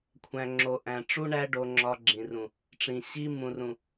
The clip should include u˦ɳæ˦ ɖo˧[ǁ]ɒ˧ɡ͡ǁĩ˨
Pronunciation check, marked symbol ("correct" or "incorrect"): incorrect